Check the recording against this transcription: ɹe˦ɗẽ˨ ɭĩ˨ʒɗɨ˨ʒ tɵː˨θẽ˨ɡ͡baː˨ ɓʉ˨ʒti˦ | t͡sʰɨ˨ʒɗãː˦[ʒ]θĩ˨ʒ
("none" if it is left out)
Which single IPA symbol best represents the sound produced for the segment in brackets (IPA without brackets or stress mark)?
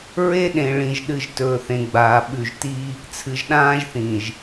ʒ